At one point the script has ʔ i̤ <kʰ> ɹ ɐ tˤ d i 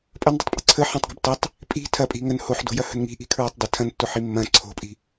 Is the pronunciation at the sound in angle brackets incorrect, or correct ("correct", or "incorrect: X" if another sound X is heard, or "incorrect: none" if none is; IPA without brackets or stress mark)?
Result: correct